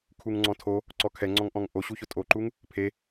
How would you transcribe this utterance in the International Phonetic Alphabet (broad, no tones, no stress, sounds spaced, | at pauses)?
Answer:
kʰ u ŋ ŋ͡ǀ ɔ̃ tʰ o | ǀ ɔ kʰ ɛ ŋ͡ǀ ɔ̃ ŋ ʔ ɔ̃ ŋ ʔ o ɕ u ç ʊ tʼ o ǃ u ŋ | pʰ e